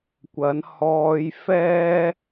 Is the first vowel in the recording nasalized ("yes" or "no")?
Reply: no